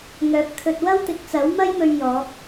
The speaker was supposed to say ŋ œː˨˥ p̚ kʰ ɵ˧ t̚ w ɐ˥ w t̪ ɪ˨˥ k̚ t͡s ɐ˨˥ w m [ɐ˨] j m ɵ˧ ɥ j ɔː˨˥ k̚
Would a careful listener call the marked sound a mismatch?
yes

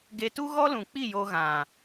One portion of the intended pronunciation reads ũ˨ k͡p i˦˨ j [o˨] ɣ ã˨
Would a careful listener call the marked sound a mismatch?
yes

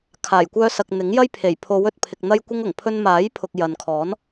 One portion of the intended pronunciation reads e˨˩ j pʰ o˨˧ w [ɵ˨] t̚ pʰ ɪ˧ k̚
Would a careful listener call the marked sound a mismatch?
no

